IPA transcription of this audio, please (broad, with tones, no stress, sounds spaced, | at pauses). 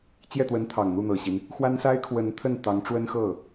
t͡ɕ j ɛ˥˩ t̪ w ə˧˥ n t̪ʰ ɑ˨˩ ŋ n̪ u˥˩ n̪ ɤ˨˩ ɕ i˦ n | x w a˥ n s a˥ ɪ̯ kʰ w ə˧˥ n t̪ʰ ə˥˩ n t̪ ɑ˧˥ ŋ ʈ͡ʂ w ə˥ n x ɤ˥˩